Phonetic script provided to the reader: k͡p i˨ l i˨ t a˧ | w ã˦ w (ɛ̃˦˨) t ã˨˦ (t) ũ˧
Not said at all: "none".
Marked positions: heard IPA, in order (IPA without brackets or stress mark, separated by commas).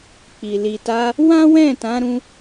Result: ɛ̃˦˨, ɾ